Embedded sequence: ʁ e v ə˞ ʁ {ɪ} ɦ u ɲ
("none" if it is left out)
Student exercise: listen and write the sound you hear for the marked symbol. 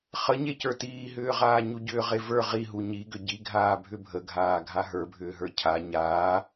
i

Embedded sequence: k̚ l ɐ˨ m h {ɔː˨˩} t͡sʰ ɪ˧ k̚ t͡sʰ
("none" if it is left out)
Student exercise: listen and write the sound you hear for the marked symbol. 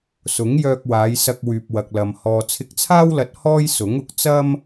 ɔː˨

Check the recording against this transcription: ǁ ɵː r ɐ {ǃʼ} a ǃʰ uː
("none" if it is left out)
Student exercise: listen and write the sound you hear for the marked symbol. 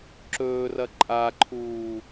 ǃʼ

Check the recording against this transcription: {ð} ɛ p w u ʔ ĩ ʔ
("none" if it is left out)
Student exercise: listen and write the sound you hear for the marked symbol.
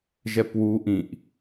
ʒ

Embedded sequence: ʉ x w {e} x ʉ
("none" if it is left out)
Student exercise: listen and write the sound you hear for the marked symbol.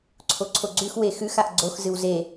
e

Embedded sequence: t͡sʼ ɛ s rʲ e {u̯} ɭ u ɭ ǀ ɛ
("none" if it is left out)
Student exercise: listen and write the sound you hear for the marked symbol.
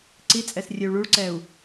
u̯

